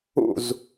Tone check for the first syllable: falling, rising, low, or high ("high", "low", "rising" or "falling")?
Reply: falling